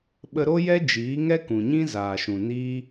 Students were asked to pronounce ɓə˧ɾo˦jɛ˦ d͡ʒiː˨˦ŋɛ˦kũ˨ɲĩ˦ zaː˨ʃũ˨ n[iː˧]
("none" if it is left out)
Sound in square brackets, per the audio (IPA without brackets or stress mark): iː˦